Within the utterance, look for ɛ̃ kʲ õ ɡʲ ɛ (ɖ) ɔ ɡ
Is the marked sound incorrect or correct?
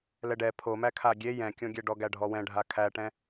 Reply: correct